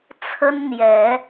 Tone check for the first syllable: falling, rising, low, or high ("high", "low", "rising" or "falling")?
high